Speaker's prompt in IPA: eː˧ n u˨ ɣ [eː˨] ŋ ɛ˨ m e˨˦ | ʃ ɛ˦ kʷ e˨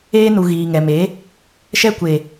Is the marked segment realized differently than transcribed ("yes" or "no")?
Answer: yes